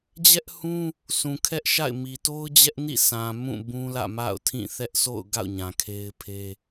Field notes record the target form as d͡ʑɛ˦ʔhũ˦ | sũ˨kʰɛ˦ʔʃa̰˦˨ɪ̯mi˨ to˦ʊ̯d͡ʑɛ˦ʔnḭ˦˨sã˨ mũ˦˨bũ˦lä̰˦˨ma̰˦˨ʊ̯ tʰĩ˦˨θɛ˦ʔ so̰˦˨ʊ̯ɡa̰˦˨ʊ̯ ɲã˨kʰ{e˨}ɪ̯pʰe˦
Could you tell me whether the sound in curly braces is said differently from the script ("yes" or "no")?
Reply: yes